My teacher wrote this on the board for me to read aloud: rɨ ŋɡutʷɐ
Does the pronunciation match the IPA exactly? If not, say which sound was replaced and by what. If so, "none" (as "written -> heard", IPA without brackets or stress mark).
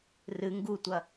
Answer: none